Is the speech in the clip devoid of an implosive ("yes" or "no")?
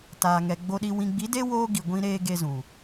no